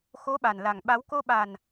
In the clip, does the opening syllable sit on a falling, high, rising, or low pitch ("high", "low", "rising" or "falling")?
rising